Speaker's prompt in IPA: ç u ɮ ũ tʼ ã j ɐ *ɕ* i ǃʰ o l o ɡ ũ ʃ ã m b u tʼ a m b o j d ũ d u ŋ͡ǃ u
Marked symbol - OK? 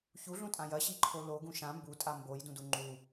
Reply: yes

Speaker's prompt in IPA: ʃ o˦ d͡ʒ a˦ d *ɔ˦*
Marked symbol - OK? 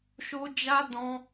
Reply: no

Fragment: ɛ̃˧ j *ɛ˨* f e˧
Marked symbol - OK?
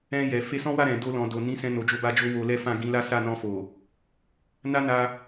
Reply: yes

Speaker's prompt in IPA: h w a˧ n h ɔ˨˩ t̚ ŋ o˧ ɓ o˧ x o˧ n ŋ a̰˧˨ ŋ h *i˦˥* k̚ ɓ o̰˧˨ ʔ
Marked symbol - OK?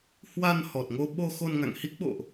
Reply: yes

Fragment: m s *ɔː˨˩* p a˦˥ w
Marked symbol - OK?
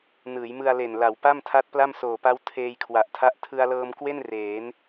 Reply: no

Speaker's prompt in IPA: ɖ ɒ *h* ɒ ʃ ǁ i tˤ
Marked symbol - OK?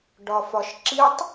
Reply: no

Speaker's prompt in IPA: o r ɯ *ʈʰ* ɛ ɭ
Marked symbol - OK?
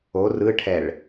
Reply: yes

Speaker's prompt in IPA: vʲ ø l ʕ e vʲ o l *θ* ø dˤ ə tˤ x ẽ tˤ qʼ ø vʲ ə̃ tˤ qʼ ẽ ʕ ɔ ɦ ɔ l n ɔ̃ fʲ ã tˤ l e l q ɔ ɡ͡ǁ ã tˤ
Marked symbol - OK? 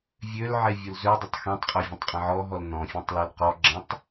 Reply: no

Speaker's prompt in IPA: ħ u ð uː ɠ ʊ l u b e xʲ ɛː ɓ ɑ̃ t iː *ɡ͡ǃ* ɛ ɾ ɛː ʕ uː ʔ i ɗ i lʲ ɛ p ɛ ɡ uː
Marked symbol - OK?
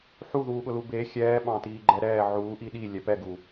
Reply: yes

